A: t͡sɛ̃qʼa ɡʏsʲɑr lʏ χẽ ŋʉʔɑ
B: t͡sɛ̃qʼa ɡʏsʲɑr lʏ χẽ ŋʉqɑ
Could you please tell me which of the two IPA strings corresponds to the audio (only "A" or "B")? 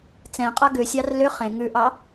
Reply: A